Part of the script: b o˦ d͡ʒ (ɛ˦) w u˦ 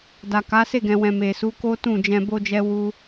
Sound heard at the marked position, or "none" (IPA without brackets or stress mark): ɛ˦